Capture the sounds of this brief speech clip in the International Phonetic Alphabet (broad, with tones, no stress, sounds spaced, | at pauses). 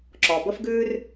ǁ ɔ˨ b ə˦ f ɡ ʉː˦ r